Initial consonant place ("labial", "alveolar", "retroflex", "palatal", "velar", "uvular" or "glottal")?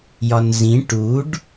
palatal